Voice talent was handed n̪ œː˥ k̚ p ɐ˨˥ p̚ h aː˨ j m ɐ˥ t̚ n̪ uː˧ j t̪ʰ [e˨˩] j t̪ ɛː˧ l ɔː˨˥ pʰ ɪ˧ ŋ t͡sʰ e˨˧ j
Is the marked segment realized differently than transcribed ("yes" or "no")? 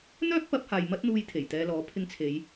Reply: no